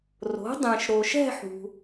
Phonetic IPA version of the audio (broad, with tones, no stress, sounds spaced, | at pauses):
r o̤˩˥ dˤ ɛ̃˨ ʃ ɾ o˨ ʃ ɛ̤˥˧ ħ ṳ˨